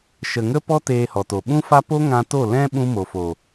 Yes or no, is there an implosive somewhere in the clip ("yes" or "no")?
yes